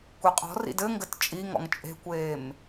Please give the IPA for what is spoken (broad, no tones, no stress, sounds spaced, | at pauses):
kʷ e qʼ ɔ̤ r ḭ d ɘ ŋ ɡ ɘ t t͡ʃʼ i ŋ ɔ̰ ŋ t͡ʃʼ e̤ kʷ eː m